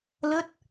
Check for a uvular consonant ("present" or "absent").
absent